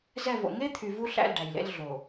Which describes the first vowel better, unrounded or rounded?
unrounded